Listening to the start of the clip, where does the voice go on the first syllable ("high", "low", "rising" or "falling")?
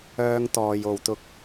high